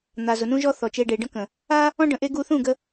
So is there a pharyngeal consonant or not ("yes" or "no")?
no